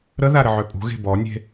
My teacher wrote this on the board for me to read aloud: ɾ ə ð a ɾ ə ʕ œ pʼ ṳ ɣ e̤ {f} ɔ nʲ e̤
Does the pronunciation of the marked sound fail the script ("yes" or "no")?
yes